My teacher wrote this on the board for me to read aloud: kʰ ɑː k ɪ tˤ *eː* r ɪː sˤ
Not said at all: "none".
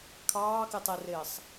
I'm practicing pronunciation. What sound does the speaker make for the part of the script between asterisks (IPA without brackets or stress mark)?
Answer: e